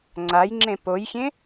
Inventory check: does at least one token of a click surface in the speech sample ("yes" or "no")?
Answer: yes